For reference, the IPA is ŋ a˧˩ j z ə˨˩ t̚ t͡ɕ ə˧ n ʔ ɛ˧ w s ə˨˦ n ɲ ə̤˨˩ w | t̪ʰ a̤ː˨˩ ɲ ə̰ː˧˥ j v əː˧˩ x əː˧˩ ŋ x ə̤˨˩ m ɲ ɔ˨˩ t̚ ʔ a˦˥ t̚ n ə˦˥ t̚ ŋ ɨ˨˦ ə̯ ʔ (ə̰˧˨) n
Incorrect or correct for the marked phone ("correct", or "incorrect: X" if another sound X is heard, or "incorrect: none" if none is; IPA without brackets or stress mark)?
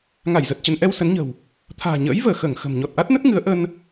incorrect: ə˧